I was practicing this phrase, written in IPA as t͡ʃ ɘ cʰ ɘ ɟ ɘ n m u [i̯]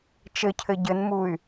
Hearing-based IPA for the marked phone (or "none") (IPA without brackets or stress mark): y̯